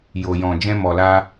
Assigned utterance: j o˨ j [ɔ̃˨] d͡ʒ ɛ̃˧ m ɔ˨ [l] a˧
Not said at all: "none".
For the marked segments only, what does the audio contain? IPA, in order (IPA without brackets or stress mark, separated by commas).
ɔ̃˨, l